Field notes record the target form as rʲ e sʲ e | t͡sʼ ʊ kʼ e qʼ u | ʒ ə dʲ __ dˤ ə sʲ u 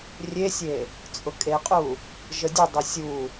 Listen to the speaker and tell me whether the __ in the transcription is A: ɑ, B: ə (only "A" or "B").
B